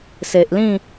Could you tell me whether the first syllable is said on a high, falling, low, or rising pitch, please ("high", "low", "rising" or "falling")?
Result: low